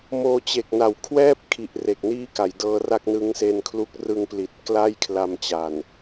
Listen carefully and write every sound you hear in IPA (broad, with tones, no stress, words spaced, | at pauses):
moː˧t͡ɕe˨˩k̚na˨˩w kʰwɛː˥˩p̚kʰi˨˩ʔ re˨˩k̚niː˥˩ka˩˦jdɤː˦˥ ra˥˩k̚nɯ˦˥ŋse˧nkʰlu˦˥k̚ rɯ˧ŋpli˨˩t̚ kla˥˩jkʰla˧mt͡ɕa˨˩n